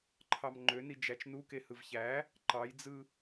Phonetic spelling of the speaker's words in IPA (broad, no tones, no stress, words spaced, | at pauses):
ǃʰɑmŋ͡ǃøni d͡ʒæt͡ʃnukehɯv çæ | ǃɑjd͡zɯ